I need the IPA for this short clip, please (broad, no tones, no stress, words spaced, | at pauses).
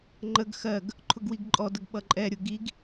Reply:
ŋ͡ǃəɡ xɜɡ | ǃʰʊɡwiɡǃʼɔdəɡ ɓʌǃʼɛɾʲʊ ɡiɡ